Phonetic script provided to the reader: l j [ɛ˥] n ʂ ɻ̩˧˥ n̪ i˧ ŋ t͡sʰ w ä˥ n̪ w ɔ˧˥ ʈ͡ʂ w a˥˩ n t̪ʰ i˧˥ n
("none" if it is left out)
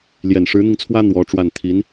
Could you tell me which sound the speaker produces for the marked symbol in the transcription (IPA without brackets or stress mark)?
ɛ˨˩